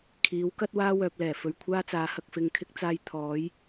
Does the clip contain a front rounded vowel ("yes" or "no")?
yes